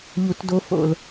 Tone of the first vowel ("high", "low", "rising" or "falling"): low